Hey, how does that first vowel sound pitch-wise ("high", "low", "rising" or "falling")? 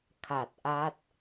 low